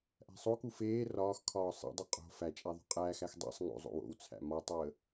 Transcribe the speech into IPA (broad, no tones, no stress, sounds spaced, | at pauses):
ʔ æ̤ sˤ o k u f eː r ɒː x kʰ ɒː sˤ ḛ dˤ u qʼ o̤ f æ t͡ʃʼ æ ðˤ o̤ qʼ æː x æ x dˤ ḛ sˤ ŋ o̰ zˤ o̰ w o̰ w t͡sʰ æ̰ m ɒ tˤ o ə̯